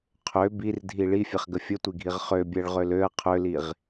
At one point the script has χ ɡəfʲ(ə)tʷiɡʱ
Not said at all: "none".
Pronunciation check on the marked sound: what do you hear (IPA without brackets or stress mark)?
ə